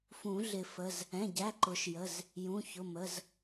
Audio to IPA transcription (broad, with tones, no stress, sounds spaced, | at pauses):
f ũ˨˩˦ ɮ ɪ˨˩˦ f ə˩˧˩ z | ɛ̃˩˧˩ ɟ æ˩˧˩ ǃ ʊ˨˩˦ ʃ j ə˩˧˩ z | j ũ˩˧˩ ç ʊ˩˧˩ m ə˩˧˩ z